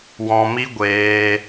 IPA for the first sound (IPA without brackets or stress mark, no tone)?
w